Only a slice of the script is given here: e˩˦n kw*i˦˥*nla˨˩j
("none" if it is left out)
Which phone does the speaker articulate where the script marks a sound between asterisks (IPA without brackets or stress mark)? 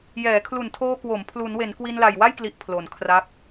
i˧